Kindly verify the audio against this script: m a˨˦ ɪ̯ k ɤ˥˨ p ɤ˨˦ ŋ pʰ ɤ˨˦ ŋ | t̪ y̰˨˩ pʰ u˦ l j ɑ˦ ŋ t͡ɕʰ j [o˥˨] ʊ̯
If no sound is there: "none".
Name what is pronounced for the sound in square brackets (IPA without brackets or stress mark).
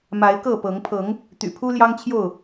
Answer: o˥˨